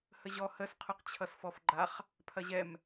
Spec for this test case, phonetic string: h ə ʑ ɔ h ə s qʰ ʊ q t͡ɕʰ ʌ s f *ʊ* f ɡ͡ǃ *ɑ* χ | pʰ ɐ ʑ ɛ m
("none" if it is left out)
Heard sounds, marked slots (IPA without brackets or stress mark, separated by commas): ɔ, a